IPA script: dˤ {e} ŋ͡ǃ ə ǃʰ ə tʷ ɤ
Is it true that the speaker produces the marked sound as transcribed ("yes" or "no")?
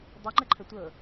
no